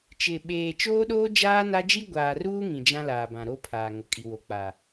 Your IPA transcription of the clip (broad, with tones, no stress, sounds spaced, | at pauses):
t͡ʃ ɪ˨ ɓ eː˨ t͡ʃ oː˦ ɗ oː˦ d͡ʒ aː˦ n a˦ d͡ʒ i˦ ɡʷ aː˨ r uː˦ ŋ ĩ˨ d͡ʒ ã˦ l aː˨ b ã˨ ɾ o˦ pʰ aː˨ ŋ ʊ˨ kʼ i˨ w o˨ k͡p a˨